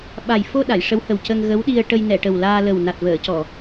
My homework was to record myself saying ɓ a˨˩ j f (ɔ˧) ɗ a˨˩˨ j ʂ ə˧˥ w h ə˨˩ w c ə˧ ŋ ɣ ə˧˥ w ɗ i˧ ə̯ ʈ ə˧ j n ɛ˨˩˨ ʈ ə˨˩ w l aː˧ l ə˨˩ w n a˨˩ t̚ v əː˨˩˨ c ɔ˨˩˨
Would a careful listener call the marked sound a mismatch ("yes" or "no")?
yes